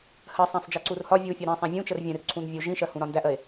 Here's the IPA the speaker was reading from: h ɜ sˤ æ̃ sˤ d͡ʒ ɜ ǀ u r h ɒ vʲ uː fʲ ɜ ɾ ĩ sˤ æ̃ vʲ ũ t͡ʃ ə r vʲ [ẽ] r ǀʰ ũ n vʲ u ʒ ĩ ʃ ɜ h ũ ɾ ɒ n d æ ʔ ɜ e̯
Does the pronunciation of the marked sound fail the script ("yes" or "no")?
yes